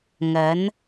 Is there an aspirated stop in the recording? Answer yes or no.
no